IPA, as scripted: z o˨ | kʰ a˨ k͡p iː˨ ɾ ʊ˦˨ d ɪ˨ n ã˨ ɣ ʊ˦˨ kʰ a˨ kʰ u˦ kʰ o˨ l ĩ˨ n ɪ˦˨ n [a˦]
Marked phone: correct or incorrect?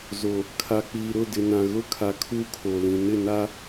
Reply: correct